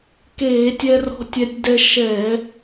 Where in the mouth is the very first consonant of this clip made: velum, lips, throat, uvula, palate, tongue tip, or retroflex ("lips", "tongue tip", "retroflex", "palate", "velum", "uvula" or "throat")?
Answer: velum